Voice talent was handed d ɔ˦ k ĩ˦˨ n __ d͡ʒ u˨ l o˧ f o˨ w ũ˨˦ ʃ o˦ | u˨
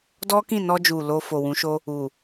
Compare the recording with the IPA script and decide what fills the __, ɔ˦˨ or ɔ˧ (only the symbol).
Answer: ɔ˧